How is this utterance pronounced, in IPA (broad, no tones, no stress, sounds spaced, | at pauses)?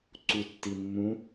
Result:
ǀ u tː i mː ũ